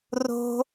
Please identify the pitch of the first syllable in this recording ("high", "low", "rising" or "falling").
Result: high